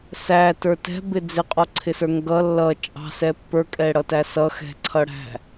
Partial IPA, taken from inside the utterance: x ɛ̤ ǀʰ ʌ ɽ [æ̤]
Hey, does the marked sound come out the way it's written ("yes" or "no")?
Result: yes